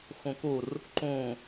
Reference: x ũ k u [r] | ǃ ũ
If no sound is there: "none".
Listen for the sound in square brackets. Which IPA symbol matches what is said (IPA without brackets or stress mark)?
r